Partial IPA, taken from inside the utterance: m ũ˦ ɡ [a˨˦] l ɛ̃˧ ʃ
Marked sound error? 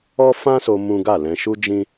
yes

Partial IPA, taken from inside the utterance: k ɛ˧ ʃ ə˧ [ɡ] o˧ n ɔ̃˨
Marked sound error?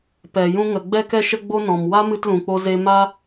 yes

